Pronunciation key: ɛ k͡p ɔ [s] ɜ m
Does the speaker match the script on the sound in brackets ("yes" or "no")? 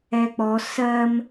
yes